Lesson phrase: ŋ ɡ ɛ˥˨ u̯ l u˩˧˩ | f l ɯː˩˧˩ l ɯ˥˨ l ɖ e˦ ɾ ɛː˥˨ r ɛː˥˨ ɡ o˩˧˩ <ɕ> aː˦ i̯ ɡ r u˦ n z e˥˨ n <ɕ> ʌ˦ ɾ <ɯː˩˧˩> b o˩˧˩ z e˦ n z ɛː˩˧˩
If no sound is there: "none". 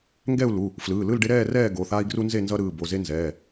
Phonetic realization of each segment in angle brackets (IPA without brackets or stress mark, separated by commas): θ, z, ɯː˩˧˩